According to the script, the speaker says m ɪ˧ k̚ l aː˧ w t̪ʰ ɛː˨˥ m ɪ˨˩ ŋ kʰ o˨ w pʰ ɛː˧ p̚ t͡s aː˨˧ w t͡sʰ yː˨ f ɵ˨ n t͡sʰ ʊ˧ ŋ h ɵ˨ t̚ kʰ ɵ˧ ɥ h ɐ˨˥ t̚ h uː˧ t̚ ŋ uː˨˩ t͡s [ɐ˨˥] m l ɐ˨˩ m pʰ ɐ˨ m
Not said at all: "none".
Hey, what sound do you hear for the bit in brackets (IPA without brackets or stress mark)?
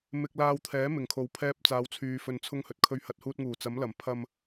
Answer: ɐ˨˥